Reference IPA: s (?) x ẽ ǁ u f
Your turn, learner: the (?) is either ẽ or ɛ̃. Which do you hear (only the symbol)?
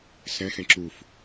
ɛ̃